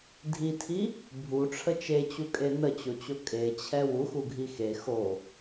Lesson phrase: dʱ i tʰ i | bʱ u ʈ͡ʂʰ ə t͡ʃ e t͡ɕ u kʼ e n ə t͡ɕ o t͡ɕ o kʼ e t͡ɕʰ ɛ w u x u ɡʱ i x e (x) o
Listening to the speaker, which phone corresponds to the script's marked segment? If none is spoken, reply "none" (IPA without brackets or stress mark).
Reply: x